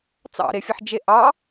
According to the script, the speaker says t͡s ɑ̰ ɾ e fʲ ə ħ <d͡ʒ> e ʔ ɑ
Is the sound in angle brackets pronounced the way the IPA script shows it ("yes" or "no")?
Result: yes